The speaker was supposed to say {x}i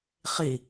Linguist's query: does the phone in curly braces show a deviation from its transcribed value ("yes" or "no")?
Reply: yes